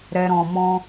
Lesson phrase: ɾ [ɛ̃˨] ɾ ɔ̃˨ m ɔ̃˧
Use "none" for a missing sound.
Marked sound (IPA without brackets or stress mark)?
ɛ˨